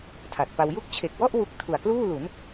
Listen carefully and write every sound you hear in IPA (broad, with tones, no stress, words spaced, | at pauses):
tʰa˨˩t̚pa˧w ju˦˥k̚t͡ɕʰe˨˩k̚wɔ˥˩ʔ wu˦˥k̚ tʰu˨˩a̯kluː˥˩lu˩˦n